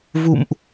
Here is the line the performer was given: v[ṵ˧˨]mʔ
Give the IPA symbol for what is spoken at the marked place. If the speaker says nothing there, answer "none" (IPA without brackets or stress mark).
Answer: ṵ˧˨